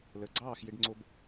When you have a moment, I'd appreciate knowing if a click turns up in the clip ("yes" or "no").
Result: yes